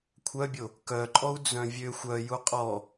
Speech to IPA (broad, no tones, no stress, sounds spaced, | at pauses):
kʷʰ œ bʲ o | k œ ǃʼ ɔ u̯ d͡z œ̃ vʲ ø xʷ œ j u qʼ ɔ